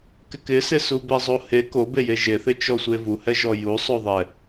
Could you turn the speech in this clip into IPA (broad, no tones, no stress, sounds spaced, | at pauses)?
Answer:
k ɪ k ɪ s ɪ s u b ɛ zˤ o h e k o b e j e ʒ e θ ɪ t͡ʃ ɔ sʷ e v u h ɛ ʒ ɔ j u sˤ o ðˤ ɛ